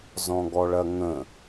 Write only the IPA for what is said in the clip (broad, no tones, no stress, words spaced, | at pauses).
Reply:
zɔ̃ɡɔɭɐŋə̃